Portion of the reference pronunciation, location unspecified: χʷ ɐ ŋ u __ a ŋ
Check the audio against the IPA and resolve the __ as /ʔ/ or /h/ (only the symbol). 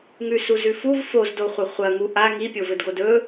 ʔ